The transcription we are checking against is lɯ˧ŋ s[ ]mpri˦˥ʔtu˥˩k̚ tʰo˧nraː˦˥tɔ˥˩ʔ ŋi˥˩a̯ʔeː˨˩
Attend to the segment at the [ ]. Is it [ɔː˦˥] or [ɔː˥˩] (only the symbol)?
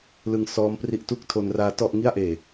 ɔː˦˥